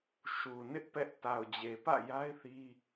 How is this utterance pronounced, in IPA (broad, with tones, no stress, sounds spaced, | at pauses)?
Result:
ʃ u˨ n ɪ˦ ʔ p ɛ˦ ʔ t a˨ ʊ̯ d͡ʑ e˨ p ä̰˦˨ j a˦ ɪ̯ θ i˦